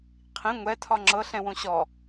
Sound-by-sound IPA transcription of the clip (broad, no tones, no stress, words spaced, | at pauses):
qʰĩ ŋʷɛtʰɒ ŋ͡ǁɤɬɛ̃wõ ɕɔ